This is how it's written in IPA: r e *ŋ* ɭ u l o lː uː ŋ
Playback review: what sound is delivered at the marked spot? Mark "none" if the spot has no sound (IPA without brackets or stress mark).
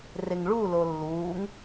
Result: ŋ